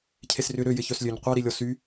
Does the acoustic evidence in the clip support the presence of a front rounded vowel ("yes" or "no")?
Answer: yes